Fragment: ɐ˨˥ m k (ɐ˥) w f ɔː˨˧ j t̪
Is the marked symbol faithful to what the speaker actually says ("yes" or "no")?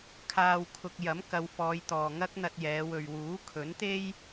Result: no